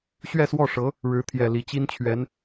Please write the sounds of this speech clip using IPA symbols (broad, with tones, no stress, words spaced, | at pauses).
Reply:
ɕɥɛ˥˧swɔ˥˩ʂɤ˧˥ | ɻɻ̩˧˥t̪ʰjɛ˨˩ li˧˥t͡ɕi˥nt͡ɕʰɥɛ˧˥n